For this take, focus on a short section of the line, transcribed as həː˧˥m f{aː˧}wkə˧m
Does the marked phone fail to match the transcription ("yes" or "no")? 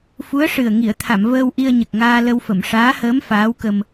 yes